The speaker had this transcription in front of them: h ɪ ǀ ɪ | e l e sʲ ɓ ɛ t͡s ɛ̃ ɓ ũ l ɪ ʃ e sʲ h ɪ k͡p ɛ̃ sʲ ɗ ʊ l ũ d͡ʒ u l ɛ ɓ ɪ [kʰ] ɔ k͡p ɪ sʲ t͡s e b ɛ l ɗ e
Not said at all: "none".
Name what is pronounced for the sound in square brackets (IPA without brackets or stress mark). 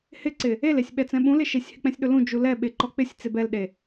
ǃ